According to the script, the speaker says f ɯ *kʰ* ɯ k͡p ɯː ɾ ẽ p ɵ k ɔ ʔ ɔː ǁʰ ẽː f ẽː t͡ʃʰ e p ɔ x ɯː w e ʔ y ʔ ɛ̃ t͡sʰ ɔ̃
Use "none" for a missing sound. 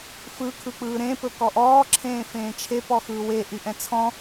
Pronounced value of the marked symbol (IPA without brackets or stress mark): kʰ